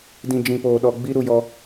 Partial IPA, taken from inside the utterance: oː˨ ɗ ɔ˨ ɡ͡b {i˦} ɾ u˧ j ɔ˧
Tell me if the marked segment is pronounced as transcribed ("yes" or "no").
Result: yes